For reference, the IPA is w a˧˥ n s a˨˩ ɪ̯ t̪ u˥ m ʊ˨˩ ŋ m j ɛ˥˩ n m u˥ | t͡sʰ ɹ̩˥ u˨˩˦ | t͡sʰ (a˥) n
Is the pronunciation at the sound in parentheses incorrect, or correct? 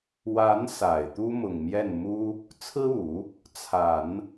incorrect